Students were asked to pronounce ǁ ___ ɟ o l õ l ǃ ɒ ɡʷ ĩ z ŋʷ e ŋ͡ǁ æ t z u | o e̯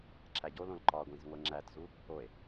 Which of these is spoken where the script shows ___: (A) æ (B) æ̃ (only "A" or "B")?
A